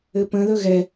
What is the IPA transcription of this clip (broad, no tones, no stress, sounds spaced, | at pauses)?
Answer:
ɘ p ə̃ ð ɵ ɣ ɛ